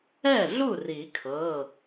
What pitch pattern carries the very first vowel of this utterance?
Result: falling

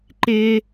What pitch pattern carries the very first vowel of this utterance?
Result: high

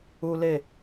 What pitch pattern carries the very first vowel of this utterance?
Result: high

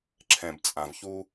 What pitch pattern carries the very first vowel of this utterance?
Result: low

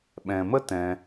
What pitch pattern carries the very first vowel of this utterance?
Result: low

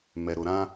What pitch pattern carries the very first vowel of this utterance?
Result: low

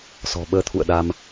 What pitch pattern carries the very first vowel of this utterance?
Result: low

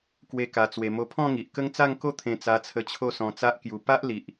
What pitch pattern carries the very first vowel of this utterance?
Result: high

